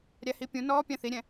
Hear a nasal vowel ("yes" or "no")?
yes